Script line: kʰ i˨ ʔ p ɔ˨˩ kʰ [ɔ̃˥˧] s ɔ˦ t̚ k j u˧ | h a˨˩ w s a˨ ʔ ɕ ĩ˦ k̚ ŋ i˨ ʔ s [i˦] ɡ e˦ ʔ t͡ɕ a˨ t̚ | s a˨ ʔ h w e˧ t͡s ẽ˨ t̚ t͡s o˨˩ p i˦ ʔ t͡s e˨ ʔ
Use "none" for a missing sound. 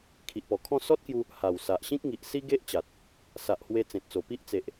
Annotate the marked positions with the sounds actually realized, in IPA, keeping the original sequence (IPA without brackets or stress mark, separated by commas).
ɔ̃˥˧, i˦